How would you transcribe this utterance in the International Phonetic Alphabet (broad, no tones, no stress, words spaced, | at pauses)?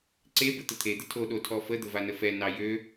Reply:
ǀebə t̪ət̪ʰed̪ə tʰoɗo tʰɔfəd̪ə vanəfɛnɑ jø